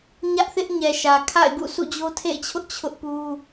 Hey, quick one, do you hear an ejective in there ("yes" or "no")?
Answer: no